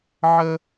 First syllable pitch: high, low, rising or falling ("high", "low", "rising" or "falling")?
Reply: high